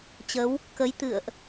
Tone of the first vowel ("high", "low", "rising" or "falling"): rising